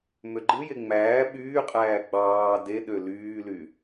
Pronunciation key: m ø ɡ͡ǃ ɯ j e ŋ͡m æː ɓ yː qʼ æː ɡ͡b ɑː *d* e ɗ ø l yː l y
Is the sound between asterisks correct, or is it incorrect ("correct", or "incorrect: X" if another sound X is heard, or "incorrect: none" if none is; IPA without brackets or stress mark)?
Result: correct